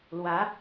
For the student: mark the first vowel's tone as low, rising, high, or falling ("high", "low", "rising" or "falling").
rising